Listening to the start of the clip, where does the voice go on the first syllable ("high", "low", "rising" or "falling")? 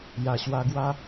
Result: low